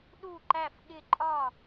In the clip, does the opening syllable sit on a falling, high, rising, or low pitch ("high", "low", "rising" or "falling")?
falling